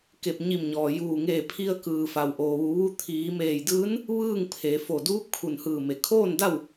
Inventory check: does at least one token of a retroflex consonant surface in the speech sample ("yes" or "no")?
no